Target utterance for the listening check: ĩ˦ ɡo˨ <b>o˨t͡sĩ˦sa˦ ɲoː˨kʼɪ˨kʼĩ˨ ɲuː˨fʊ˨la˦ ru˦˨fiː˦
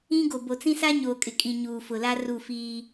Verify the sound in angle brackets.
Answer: correct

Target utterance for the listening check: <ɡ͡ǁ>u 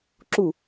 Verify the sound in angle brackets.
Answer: incorrect: ǁ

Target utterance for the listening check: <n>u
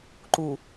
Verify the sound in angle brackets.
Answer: incorrect: ǃ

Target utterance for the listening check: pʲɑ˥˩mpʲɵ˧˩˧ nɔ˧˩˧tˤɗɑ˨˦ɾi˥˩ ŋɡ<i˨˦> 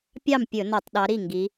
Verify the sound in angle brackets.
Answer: correct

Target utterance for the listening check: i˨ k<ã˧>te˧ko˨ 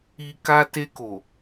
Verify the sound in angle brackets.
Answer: incorrect: a˧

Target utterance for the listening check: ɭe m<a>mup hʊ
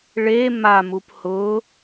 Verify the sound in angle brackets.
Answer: correct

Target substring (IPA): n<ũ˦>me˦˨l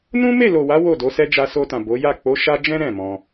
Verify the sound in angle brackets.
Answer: correct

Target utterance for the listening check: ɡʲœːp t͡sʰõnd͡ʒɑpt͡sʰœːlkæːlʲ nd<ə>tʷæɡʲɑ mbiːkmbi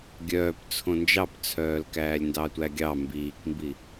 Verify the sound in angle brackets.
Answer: incorrect: ɑ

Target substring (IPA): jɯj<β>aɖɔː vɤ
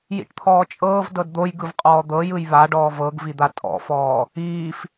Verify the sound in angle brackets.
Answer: correct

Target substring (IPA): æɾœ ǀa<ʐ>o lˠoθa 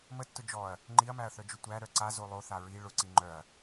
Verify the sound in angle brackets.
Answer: incorrect: z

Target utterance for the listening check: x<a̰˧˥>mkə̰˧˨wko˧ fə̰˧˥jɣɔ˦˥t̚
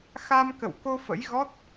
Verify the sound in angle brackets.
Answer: incorrect: a˧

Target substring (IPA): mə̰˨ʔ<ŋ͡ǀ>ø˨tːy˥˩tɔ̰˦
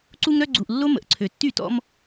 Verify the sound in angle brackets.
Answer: incorrect: ǀʰ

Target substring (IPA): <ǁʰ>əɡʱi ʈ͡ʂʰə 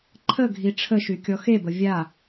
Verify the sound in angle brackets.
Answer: incorrect: ǃʰ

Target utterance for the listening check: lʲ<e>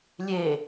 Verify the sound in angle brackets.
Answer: correct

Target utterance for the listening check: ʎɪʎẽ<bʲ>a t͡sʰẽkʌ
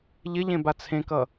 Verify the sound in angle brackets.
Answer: incorrect: b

